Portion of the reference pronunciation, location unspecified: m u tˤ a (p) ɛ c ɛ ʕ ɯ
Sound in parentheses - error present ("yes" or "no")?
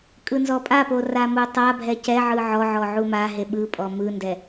yes